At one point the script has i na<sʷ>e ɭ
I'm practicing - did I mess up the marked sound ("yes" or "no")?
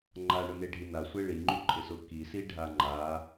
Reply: no